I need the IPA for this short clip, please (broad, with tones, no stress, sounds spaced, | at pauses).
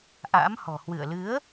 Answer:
ʔ a̰˧˥ m h ɔ̤˨˩ h w ɨ̰˧˨ ə̯ l ɨ˨˦ ə̯